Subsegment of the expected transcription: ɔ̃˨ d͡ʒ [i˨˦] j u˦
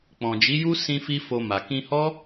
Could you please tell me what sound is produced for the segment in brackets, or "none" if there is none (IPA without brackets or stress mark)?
i˨˦